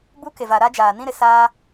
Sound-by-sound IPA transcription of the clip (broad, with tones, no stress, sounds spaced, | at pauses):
b u˦ k e˨ v a˨ ɾ a˦ d͡ʒ aː˨ n ĩ˦ ɾ ɪ˨ s aː˦